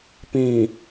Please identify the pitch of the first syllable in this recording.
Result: low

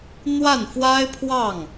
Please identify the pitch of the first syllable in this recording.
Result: falling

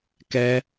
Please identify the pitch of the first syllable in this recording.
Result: high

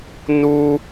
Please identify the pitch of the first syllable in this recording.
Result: high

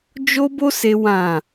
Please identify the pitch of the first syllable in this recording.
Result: high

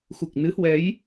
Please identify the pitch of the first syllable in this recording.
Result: low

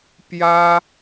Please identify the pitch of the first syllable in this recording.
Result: high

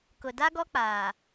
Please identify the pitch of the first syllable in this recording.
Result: low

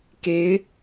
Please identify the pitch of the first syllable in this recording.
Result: rising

